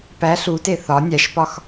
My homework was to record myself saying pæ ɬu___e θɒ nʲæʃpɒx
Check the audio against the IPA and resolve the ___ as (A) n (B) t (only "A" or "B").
B